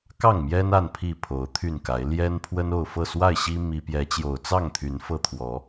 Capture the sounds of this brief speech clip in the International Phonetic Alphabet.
k ɑ˥˨ ŋ m j ɛ˦ n a˥˨ n pʰ i˥˨ pʰ o˨˦ ʊ̯ t̪ʰ y˥˨ n k a˨˦ ɪ̯ l j ɛ˦ n pʰ w ə˦ n o˥˨ ʊ̯ f ɤ˥˨ s w a˥˨ ɪ̯ ɕ i˦ m i˦ p j ɛ˨˦ t͡ɕ j o˨˩ ʊ̯ t͡s ɑ˥˨ ŋ t̪ʰ y˨˦ n f ɤ˦ t̪ʰ w ɔ˨˦

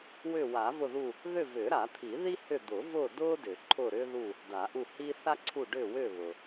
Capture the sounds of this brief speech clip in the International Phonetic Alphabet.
w ʏ˦˨ w a˨˩˦ v ʊ˦˨ ð u˦˨ | ð ʏ˦˨ v ʏː˨˩˦ ɾ a˨˩˦ t̪ʰ i˨˩˦ ð i˥ h ʏ˦˨ d̪ ʊ˨˩˦ v ʊː˦˨ d ʊː˥ d ʏ˨˩˦ ǃʰ ʊː˦˨ ɾ ʏː˥ ð u˦˨ | d a˨˩˦ ʔ u˦˨ h iː˥ θ a˥ ǀʰ u˦˨ ɖ ʏː˦˨ w ʏː˦˨ β ʊ˩

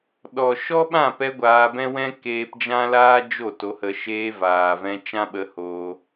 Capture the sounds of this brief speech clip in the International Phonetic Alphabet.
ɗ ɔ˨ ʃ ɔ˦ ɓ ã˦˨ p ɛ˧ ɡʷ aː˧ b ɛ̃˦ w ɛ̃˦ k eː˧ p d͡ʒ ã˦ l aː˦ d͡ʒ o˦˨ t o˧ h ə˧ ʃ eː˧ v aː˨ v ɛ̃˧ t͡ʃ ã˦ ɓ ə˧ h oː˧

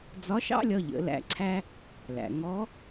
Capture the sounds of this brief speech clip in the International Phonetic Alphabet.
d͡z ɒ˧˥ ʃ ɑ̰˥ lʲ ɒ˧ ʎ ə̰˩˧ l æ̰˧ ǀʰ æ˥ | l æ̰˩ ŋ ɔ˧˥

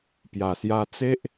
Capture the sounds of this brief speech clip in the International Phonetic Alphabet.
p j a˨˩ s j a˧ t͡s e˦ ʔ

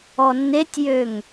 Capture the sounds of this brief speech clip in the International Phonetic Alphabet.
ɔ nː e tʲ j ø ŋ

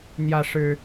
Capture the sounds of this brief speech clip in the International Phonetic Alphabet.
n̪ j ä˦ ʂ ɻ̩˦

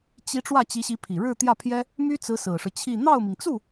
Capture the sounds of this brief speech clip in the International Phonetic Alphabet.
t͡ɕ i˧˥ ʈ͡ʂ w ä˥˩ t͡ɕ i˧˥ ɕ i˧˥ pʰ i˨˩ ɻ ɻ̩˥˧ t̪ j ä˥˩ pʰ j ɛ˥ | m y˥ t͡s ɹ̩˧˥ s ɹ̩˨˩ ʂ ɻ̩˦ t͡ɕʰ i˥˧ n̪ ɑ˥˩ ʊ̯ m i˩ ŋ t͡s u˥˩

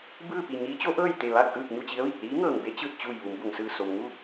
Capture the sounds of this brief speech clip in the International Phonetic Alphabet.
b ɯː˥˨ p i˧˩ ɲ iː˧˥ t͡ɕ o˧˥ ʔ ɤː˥˨ j t̪ e˧˩ ʋ a˥˨ k̚ ʔ ɯː˥˨ k̚ ɲ u˥˨ t͡ɕ i˧˥ ə̯ ʋ i˧˩ k̚ l iː˧˥ ŋ ɤː˧˩ ŋ b e˧˥ t͡ɕ ɯː˧˩ t̚ t͡ɕ uː˧˩ j ʋ u˩˧ m b o˩ ŋ s ɯː˧˩ s o˩ m ŋ u˥˨

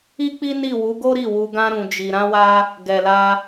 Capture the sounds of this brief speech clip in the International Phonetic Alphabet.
i˦ k͡p i˦ n i˦˨ w u˨˦ ɡ o˦ ɾ i˦˨ w u˧ ɡ ã˦ ɾ ũ˧ d͡ʒ i˧ ɾ ã˦ w a˦ | ɡ ɛ˨ l a˧

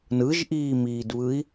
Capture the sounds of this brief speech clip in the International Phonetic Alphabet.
n ɯ ʒ ʔ iː m iː d β ɯ i̯

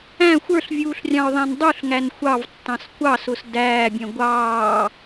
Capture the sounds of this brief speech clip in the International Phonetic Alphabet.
æ̃ xʷ ə˞ ɬ vʲ uː ɬ rʲ ɑ̃ ʊ̯ ðˤ æ̃ n dˤ u ɬ ŋ æ n xʷ ɑ v tː ɑ̃ s kʷ ɑ s ʊ s d æː bʲ ɛ̃ ɡʷ ɑː

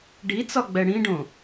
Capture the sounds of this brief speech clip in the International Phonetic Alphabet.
ɖ i t͡s ɒ ɡ͡b ɛ ɽ ĩ ɖ õ

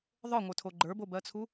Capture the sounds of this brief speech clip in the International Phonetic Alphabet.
ðˤ ə˞ ŋʷ ə˞ tʰ o ɡ͡ǃ ə˞ b o b ɜ t͡sʰ u

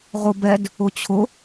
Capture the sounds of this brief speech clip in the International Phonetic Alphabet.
ʁ ʊ b ɛ d | ʊ t͡ɕʰ ʊ

